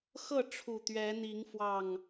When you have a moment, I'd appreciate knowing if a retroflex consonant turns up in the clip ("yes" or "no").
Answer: yes